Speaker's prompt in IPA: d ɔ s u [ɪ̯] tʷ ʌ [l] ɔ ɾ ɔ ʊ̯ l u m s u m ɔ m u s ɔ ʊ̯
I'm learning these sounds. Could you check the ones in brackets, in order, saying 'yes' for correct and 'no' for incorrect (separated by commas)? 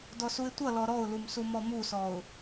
yes, yes